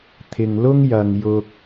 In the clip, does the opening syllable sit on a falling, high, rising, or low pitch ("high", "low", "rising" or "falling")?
low